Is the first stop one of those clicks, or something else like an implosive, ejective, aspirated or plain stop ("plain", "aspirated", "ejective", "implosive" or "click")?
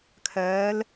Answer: aspirated